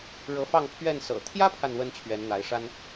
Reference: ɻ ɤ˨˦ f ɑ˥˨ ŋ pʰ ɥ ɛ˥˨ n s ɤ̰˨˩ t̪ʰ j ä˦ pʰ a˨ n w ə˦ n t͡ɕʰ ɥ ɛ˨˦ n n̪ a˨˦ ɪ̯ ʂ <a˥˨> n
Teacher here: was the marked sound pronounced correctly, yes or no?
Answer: no